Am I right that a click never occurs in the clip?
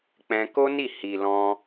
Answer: yes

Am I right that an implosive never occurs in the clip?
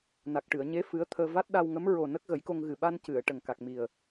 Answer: no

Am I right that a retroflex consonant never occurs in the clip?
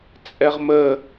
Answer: yes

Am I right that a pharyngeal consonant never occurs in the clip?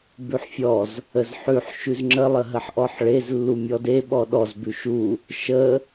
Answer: no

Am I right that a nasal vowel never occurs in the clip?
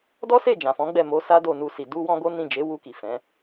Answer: no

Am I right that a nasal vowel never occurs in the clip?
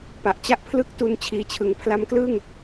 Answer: yes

